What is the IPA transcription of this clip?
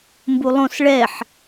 m b u lˠ õ s ɭ ɛ ħ

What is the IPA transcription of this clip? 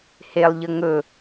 h e lˠ ʎ ə ŋ ɵ

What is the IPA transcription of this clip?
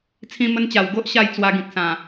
t͡sʰ ĩ˧ m ə˧ n t͡ɕ a˨˩ w ɡ o˦ ʔ ɕ a˥˧ j t͡s w a˧ ɡ ĩ˨ k̚ s ã˨˩

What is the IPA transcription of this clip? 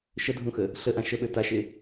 ʃ ə dʱ ũ x ə | ɬ ə ʔ ã ʃ ə ɓ ø t a ʃ e

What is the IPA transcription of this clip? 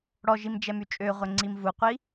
ɽ ɔ ʒ i m d͡ʒ ɛ m y t͡ʃʼ ø ʁʷ ɛ ŋ͡ǀ i m v u qʷ i

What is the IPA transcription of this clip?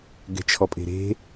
ɡ ɛ̤ t͡ʃʰ ɔ pʼ e̤ ɾ e̤

